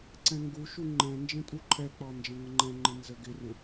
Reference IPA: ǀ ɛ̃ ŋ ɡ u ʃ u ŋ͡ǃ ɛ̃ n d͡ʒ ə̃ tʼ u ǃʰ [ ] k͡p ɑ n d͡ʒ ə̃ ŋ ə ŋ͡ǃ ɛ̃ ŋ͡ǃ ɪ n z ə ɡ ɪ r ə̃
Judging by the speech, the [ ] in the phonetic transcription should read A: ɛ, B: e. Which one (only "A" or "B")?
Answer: A